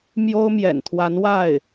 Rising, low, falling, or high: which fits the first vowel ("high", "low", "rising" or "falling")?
high